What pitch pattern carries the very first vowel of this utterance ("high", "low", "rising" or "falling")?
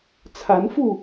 rising